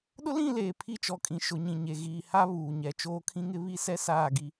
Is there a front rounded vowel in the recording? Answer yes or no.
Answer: no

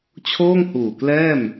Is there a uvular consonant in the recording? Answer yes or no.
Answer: no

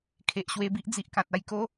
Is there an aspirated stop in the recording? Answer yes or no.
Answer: yes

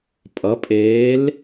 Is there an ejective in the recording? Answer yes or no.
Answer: yes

